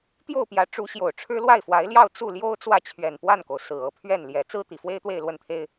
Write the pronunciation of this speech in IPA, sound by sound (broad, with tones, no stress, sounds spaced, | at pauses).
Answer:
t̪ j o˥˩ ʊ̯ p j ä˧˥ ʈ͡ʂ u˧˥ ɕ j o˨˩ ʊ̯ ʈ͡ʂʰ ɻ̩˥ l w a˥˩ ɪ̯ f w a˧˥ ɪ̯ l j ɑ˥˧ ʊ̯ t͡s u˥˩ l j o˥ ʊ̯ t͡s w ä˥˩ t͡ɕʰ ɥ ɛ˨˩ n p w a˥˩ n k o˩ ʊ̯ s ɹ̩˨˩ ɤ˧˥ pʰ ɥ ɛ˥˩ n l j ɛ˧˥ t͡s ɹ̩˥ t̪ i˨˩ f w e˥ ɪ̯ t̪ w e˥˧ ɪ̯ l w ə˥˩ n t̪ʰ e˥ ɪ̯